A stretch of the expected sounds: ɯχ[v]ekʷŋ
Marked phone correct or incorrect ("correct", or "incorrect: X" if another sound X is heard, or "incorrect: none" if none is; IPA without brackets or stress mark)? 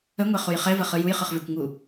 correct